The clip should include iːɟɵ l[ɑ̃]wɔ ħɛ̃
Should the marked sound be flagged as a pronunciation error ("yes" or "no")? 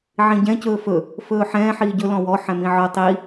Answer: yes